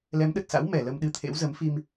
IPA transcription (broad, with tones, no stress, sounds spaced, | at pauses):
l ɛ˨˦ m ɗ ə˨˩ t̚ s a̰˧˥ w m ɛ˧˩ l ə˧ m ɗ ɨ˧ t̪ʰ ḛ˧˥ w z ə˨˦ m f i˧ m